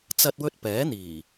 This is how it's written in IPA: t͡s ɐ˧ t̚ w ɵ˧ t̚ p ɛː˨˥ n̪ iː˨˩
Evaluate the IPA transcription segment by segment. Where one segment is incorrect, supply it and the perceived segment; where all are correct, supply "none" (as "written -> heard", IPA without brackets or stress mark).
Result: none